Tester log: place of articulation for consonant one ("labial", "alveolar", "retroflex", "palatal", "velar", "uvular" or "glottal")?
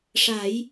retroflex